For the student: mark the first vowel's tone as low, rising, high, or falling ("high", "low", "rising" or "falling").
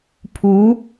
rising